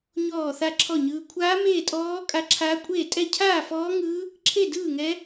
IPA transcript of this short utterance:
ɲɔː˥˧θa˥˧ǁʰɔ˥˧ɲɯː˦˥ kʷʰaː˦˥ meː˥˧tʼɔː˦˥ kʼa˦˥ǁʰaː˦˥ kʷʼeː˥˧tʼɛ˥˧ cʰaː˥˧fɔː˦˥ŋɯː˦˥ | ǁʰe˥˧dɯː˥˧ŋɛ˦˥

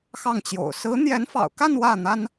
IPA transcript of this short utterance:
xɑ˥˩ŋt͡ɕjo̰˨˩ʊ̯ sɹ̩˧˥n̪jɛ˧˥nfɑ̰˨˩ʊ̯ka˥˧n wä˥˩n̪a˥n

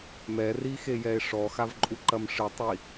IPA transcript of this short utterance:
mɛrixejɛe̯ ʂɔxavǃʼuǃɐm ʂɨtˤi

